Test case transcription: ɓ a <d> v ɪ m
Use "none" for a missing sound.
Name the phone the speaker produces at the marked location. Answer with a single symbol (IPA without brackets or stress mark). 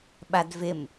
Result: d